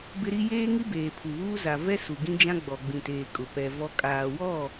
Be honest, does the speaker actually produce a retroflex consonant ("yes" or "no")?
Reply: no